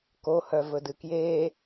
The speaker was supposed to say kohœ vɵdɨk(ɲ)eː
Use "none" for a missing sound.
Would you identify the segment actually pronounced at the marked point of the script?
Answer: j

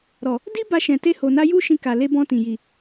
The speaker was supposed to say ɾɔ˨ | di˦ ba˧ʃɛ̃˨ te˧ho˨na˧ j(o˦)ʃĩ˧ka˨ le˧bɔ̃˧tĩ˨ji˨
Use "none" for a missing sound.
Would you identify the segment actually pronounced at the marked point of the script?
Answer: u˦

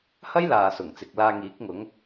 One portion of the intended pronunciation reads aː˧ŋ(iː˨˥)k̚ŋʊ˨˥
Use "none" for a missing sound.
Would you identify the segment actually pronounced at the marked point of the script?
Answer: iː˨˥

